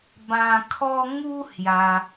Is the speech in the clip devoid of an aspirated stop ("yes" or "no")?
no